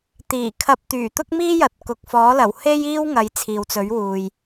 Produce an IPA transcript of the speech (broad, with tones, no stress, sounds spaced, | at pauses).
t̪ iː˨˩ kʰ ɐ˧ p̚ t̪ yː˨˩ t̪ ʊ˥ k̚ m iː˥ j ɐ˨˥ t̚ k ʊ˨ k̚ f ɔː˨˥ l ɐ˨˩ w h e˥ j iː˥ w ŋ ɐ˨˧ j t͡sʰ iː˨ w t͡s ɵ˨˥ ɥ w uː˨ j